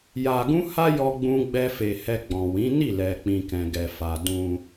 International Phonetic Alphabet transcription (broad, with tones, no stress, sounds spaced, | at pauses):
j a˧ ɡ ũ˦ h a˦ j ɔ˦ ɡ͡b ũ˦ ɡ͡b ɛ˦ f e˧ h ɛ˧ ɡ͡b ɔ̃˨ w ĩ˨˦ n i˦˨ l ɛ˨ k͡p ĩ˨ k ɛ̃˨ ɡ ɛ˨ f a˨ d ũ˧